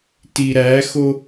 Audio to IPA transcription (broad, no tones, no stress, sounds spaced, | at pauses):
t i ɾ æ x o